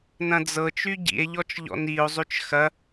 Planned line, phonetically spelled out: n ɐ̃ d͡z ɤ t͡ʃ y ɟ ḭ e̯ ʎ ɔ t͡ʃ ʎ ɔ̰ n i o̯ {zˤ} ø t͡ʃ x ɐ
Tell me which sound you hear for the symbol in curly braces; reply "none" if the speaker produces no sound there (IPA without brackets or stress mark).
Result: zˤ